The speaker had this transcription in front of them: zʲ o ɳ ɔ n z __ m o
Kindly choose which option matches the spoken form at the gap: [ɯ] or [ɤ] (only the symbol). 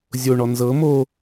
ɤ